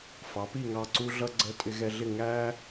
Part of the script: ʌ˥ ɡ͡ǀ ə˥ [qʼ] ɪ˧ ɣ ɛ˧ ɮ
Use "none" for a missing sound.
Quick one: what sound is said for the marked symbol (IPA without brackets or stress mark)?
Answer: tʼ